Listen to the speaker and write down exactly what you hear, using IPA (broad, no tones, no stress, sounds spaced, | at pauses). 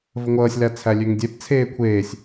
v ə ŋʷ ʌː sʲ l æ t͡sʰ æ lʲ ø ŋ dʲ ɛ p t͡sʰ eː kʷʰ eː sʲ